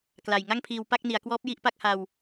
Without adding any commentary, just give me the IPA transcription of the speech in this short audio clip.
k l a˨˩ j ŋ a˥˩ ŋ pʰ iː˧ w p a˥˩ k̚ n i˩˦ a̯ k w ɔː˦˥ p̚ j i˥˩ ʔ p a˥˩ k̚ h a˧ w

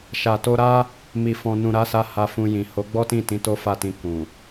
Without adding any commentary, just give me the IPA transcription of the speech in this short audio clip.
ʃ a˨ t o˧ ɾ a˦ | m i˨ f ɔ̃˨ n ũ˨ ɾ a˨˦ s a˧ h a˧ f ũ˧ j ĩ˨ h o˨˦ ɡ͡b ɔ˦ t ĩ˦˨ t ĩ˨˦ t o˦ f a˦˨ t ĩ˧ k ũ˨

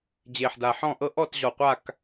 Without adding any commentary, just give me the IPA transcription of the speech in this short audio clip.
d͡ʑ e˨˩ ħ d a˨˩ ħ ɔ̃˥˨ ʔ ɤ˥ ʔ ɔ˥˨ t ʑ ɔ˨˩ qʷ a˥˨ k

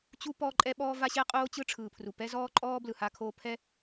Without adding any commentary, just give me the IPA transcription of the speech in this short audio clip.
t͡ɕ u˥ p ɔː˥ ǃʼ ɛ˥ ɓ ɔː˥ v a˥ ɕ ɛ˥ qʼ oː˥ t͡ɕ ɯ˥ ʈ͡ʂʰ ɯː˩ pʰ r u˩ p ɛ˥ z ɔː˥ ǃʼ ɔː˥ b l ɯ˩ h a˥ kʰ oː˥ pʰ ɛ˥

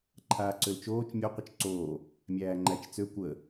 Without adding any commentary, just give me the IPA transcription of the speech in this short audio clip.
ǃʰ aː ǀ ø l t͡ʃ oː t͡ʃ mʲ o qʷ ə t͡ʃ ǀ oː | mʲ æː ŋ͡ǃ æ t͡ʃ t͡s ø kʷ ə

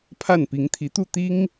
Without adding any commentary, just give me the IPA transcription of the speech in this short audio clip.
pʰ a˥˩ n p i˧˥ ŋ t̪ʰ i˧˥ t̪ u˥˩ t̪ i˥ ŋ

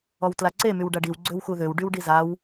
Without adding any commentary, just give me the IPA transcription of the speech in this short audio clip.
ɔ w t l a ǀ e m y w ɖ a ɖ i w ɡ͡ǀ ø w x u ð ø w ɖ y w ɖ i z a w

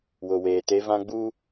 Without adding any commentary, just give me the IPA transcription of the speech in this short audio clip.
w ʊ˨ w eː˨ t e˦ v ã˦ ɡ͡b uː˦

